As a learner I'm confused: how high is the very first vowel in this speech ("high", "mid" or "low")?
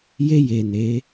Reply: mid